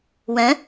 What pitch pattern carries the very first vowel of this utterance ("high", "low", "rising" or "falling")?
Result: rising